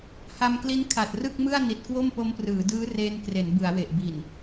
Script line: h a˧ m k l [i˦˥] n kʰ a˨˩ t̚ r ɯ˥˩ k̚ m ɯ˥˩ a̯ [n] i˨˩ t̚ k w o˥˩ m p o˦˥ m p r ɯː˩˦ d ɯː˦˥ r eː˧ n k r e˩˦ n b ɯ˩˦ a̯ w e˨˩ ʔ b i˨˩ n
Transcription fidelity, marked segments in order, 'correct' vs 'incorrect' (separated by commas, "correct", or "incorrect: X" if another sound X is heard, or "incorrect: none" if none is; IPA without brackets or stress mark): correct, correct